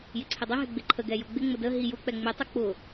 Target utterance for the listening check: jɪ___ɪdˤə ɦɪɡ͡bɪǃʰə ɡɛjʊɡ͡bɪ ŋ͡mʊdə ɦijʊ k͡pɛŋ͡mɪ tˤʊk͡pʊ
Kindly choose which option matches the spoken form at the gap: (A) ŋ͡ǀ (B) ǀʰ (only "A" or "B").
B